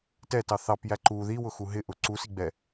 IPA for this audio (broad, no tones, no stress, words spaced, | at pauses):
tɛtɑ θɑpjæ ǃu ðiwʊxu ɦɪʔʊ ǀusiɡ͡bɛ